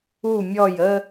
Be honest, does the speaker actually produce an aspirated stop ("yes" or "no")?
no